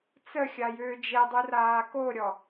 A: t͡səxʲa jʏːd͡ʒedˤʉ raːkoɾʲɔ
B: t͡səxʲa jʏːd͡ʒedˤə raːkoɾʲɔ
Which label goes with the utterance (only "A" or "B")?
A